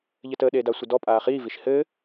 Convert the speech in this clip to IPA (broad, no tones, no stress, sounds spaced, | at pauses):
ʎ ɘ t ə ɗ eː d a sʷ ə d ɔ pʼ aː χ iː v i ʃ h ɘː